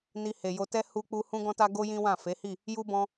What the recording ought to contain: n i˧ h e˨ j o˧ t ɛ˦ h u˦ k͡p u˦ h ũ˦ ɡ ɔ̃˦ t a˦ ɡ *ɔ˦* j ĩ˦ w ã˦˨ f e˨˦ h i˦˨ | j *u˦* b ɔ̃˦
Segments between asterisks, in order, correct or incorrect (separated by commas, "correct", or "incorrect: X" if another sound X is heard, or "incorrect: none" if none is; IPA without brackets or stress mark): incorrect: o˦, correct